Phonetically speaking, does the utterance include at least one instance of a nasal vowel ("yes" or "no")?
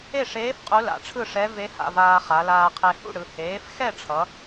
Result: no